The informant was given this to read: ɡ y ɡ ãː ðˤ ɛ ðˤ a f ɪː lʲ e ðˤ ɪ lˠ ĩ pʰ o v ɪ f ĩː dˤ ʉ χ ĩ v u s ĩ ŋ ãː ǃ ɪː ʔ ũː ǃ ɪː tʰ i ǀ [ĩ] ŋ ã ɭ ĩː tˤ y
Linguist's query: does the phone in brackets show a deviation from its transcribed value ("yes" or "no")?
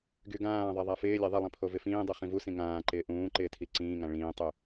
yes